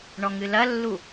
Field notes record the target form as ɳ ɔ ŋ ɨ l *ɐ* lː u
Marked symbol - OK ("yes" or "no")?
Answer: yes